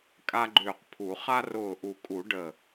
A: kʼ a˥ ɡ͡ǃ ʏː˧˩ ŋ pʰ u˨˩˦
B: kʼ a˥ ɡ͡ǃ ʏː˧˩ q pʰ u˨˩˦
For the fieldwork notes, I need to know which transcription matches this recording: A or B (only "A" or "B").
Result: B